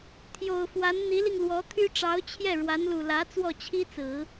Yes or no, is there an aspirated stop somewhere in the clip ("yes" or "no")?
yes